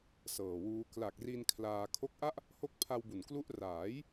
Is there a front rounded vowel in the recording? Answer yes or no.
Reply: no